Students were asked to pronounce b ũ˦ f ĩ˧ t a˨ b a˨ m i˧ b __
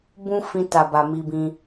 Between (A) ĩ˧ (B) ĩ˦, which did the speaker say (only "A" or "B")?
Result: A